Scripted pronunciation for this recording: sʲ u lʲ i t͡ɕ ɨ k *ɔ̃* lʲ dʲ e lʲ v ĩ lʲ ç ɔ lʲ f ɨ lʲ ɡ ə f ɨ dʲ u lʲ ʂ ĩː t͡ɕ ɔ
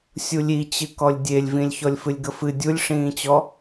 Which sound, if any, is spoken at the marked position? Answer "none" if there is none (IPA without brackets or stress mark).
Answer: ɔ